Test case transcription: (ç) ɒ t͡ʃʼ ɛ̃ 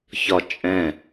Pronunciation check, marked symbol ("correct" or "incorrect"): correct